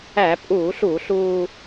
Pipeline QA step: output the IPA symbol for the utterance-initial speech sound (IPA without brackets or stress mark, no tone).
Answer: æ